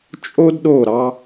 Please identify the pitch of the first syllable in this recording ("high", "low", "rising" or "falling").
high